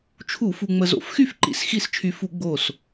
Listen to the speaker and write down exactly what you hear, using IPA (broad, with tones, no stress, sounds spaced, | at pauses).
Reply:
t͡ʃʰ u˧˩˧ f u˧ ŋ͡m ə˧ z o̰˧˩˧ f x y˥˩ f ǃ ḭ˧˥˧ s x i˥˩ s t͡ʃʰ y˧ f u˧˩˧ ɡ͡b o˧˩ s